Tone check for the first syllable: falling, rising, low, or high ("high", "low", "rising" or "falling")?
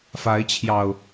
rising